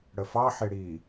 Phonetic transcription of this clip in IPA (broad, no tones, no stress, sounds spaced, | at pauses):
ɽ ə f ɑ ħ e ɽ i